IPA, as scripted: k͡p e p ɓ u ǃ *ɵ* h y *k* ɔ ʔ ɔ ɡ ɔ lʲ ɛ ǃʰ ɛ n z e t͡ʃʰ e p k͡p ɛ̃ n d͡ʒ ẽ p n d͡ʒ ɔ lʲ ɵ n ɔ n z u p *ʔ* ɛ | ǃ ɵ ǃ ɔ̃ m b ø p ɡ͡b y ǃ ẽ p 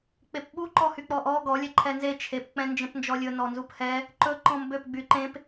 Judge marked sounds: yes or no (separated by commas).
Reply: no, no, no